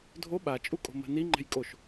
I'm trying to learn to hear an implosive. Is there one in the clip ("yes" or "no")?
yes